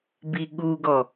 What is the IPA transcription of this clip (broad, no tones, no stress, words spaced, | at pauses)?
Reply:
biɠuɡɔ